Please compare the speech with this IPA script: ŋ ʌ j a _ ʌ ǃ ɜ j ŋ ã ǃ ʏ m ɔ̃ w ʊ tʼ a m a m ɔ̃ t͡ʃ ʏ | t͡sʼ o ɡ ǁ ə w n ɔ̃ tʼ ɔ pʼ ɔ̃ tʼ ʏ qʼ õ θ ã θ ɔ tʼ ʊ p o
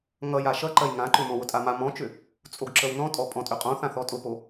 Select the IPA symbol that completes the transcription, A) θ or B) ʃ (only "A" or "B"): B